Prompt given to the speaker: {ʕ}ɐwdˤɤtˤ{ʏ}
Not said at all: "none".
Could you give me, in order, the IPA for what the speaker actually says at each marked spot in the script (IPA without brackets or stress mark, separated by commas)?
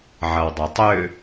ʕ, ʏ